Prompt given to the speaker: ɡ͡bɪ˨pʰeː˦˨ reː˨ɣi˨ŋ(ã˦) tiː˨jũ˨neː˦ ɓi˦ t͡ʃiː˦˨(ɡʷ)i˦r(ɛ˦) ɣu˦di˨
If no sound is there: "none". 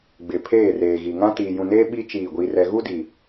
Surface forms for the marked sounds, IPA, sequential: ã˦, ɡʷ, ɛ˦

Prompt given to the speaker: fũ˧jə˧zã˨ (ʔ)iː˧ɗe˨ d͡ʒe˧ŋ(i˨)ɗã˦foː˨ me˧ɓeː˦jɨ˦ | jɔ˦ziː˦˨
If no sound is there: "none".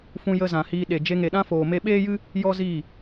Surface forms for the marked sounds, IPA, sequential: h, e˨

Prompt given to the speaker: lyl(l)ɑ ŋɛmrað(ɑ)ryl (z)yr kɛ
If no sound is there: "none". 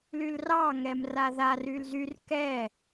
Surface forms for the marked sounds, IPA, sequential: r, a, z

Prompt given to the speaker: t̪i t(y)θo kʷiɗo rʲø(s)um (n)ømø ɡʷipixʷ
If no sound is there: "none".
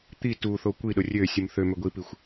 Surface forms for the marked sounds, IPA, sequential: u, sʲ, θ

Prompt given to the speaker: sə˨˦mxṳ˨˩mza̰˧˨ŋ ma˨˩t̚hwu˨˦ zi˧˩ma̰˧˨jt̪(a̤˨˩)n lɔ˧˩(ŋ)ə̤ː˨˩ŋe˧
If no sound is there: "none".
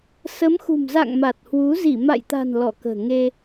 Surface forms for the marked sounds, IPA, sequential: a̤˨˩, k

